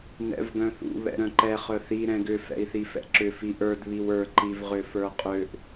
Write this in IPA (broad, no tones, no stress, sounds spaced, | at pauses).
n ɛ̰ v ɡ œ̃ θ ṵ β ɛ̰ ɾ œ̃ ǃ ɛ χ œ θ i ɾ ɛ̃ ɡ ʏ f ɛ̰ i̯ θ i f ɛ̰ ǁ ʏ f i ʔ ə˞ d β i w ə˞ ǃ i v ʁ ʏ f ə˞ qʼ ø ʔ